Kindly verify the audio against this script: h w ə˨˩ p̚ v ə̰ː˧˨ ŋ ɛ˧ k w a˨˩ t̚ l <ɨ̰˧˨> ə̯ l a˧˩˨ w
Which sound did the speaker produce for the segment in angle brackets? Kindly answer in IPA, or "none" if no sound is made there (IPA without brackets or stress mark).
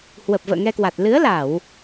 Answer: ɨ˨˦